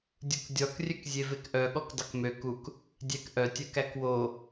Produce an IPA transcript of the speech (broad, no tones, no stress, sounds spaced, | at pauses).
dʲ u k dʲ ɔ k rʲ ø k zʲ e v e k ʔ œ ɠ ɔ k dˤ ɵ k m ø k u k | dʲ æ k ʔ œ tʲ œ k æ k w o